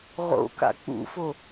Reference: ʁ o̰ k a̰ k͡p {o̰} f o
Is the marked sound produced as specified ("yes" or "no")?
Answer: no